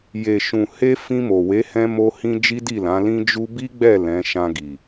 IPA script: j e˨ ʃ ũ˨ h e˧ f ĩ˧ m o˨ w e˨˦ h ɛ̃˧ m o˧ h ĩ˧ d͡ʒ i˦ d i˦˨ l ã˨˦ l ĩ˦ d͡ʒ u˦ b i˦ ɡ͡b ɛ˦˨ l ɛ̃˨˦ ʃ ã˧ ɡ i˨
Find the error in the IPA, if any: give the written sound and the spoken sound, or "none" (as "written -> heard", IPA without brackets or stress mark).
none